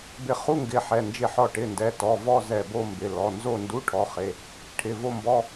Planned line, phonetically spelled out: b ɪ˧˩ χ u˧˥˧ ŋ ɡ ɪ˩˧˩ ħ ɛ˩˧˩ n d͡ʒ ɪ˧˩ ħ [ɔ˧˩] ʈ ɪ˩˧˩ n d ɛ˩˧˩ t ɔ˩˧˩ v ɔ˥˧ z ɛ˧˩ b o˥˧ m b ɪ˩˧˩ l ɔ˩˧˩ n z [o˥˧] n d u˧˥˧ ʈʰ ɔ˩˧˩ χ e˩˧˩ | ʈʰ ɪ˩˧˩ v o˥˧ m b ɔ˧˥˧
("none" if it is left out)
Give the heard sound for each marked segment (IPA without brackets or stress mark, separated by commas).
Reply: ɔ˧˩, o˥˧